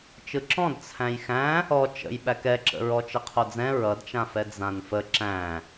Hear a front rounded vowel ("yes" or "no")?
no